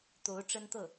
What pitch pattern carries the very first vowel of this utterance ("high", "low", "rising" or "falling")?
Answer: rising